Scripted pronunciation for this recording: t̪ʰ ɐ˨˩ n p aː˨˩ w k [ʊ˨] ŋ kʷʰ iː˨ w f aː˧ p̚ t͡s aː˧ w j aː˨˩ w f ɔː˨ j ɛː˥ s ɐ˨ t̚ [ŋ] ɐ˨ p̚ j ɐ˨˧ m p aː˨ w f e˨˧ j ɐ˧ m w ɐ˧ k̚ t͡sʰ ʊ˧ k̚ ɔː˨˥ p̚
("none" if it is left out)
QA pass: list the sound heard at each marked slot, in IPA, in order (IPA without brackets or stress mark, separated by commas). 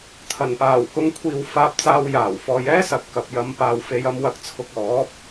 ʊ˨˧, k